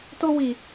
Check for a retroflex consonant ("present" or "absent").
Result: absent